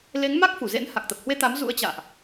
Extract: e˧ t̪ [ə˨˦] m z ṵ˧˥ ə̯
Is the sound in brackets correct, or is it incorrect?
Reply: incorrect